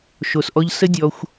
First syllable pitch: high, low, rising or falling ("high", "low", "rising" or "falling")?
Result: low